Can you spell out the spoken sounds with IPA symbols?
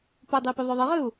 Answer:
p o dˤ y p y ðˤ o ðˤ ɯ ʁ ɯ u̯

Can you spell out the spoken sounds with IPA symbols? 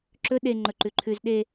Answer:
ǁ ɵ ɗ e ŋ͡ǃ ɵ ǃ ʉ ǃʰ ʉ z ɗ e

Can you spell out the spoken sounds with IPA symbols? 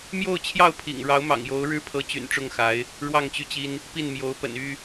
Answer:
m j o˥˧ ʊ̯ t͡ɕʰ j ɑ˥˩ ʊ̯ pʰ ḭ˨˩ ŋ ɻ ɑ˧˥ ʊ̯ m ɑ̰˨˩ ŋ j o˧˥ ʊ̯ ɻ ɻ̩˥ pʰ ɤ˧˥ t͡ɕ y̰˨˩ n ʈ͡ʂ ʊ˥˩ ŋ x a˧˥ ɪ̯ | ɻ w ɑ˥˧ ŋ t͡ɕ y˥˩ t͡ɕ i˥ n | p i˥˩ n m j o˧˥ ʊ̯ p ə̰˨˩ n y˥

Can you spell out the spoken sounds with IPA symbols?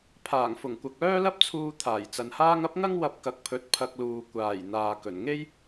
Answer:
pʰ aː˨˩ ŋ f ʊ˨˩ ŋ kʷ ɐ˨ k̚ œː˥ l ɐ˥ p̚ t͡sʰ uː˧ t̪ʰ aː˨˩ j t͡s ɐ˨ n h aː˥ ŋ ɐ˥ p̚ ŋ ɐ˥ ŋ w ɐ˧ p̚ k ɐ˨˥ k̚ pʰ ɵ˨˥ t̚ pʰ ɐ˧ k̚ l uː˨ kʷ aː˨˩ j n̪ aː˨ k ɵ˨˩ n ŋ e˥ j

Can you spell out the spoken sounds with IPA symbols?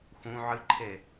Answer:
x ũ ʕ ɨ ǃʰ e

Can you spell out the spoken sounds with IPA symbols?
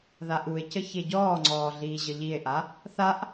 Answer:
ð a ʔ u e̯ c ə ç e ɟ ɔː ŋ͡ǀ ɔː ɮ iː ʑ ə ʎ i e̯ ʔ a | θ a ʔ

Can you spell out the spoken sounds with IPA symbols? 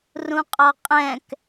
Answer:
r ũ qʼ ɔ qʼ ɛ̃ k

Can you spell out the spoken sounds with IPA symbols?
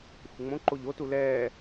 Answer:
x u ŋ͡m õ ǃ o ʎ o t u l ɛː

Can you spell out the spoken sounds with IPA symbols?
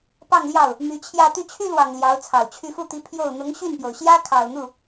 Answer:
p ɑ˥˧ ŋ l j ɑ˥˩ ʊ̯ | m y˧˥ t͡ɕʰ j ä˥˧ t̪ y˥˩ t͡ɕʰ y˥ l w ɑ˨˩ ŋ l j ɑ˧˥ ʊ̯ t͡sʰ ɑ˨˩ ʊ̯ t͡ɕʰ y˥˧ f u˥˩ t̪ i˧˥ pʰ j o˥˩ ʊ̯ n̪ ʊ˧˥ ŋ ɕ y˥˩ n p j o˩ ʊ̯ ɕ j ä˥ kʰ ɑ˨˩ ʊ̯ n̪ u˥˩

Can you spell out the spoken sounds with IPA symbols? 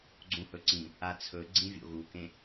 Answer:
ɡ͡ǀ ũ h ɵ ǀ ĩ | a t͡sʰ ɵ ɡ͡ǀ ĩ vʲ o̰ ɣ u k ẽ

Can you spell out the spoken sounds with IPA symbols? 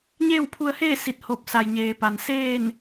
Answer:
ɲ eː˥˨ w pʰ u˧ ə̯ h eː˥˨ s i˧˩ t̚ h o˧˩ p̚ s a˩ j ɲ eː˩ p a˩ n s eː˥˨ n

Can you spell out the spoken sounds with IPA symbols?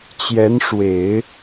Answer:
t͡ɕ j ɛ˧˥ n ʂ w e˨˩˦ ɪ̯

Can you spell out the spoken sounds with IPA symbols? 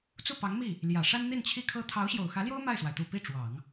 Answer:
t͡s u˥˩ p ɑ˧˥ ŋ m i˥˩ | l j ä˨˩ ʂ a˥ n n̪ i˥˧ n t͡ɕʰ i˥˩ kʰ ɤ˥ t̪ʰ ɑ˧˥ ʊ̯ ɕ j o˨˩ ʊ̯ x ä˧˥ l j o˥ ʊ̯ m a˥˩ ɪ̯ s w a˩ ɪ̯ t̪ u˨˩ p i˥˩ ʈ͡ʂ w ɑ˨˩˦ ŋ

